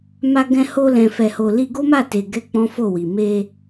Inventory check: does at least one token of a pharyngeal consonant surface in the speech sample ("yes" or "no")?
no